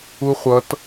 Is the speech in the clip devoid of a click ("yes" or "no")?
yes